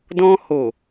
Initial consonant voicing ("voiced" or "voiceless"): voiced